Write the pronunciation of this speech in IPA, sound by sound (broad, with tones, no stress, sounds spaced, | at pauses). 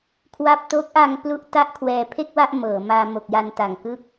kʰ w a˥˩ p̚ t o˦˥ k̚ ʔ a˧ ŋ p l u˥˩ ʔ t a˥˩ ʔ kʰ w ɛː˨˩ pʰ e˥˩ k̚ w a˥˩ ʔ m ɤː˩˦ m aː˧ m o˨˩ k̚ j a˧ n t a˨˩ ŋ k ɯ˥˩ k̚